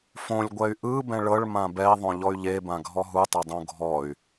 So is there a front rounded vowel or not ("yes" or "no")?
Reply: yes